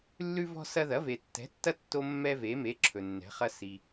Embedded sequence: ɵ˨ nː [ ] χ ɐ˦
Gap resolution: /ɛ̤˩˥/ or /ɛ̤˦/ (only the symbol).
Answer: ɛ̤˩˥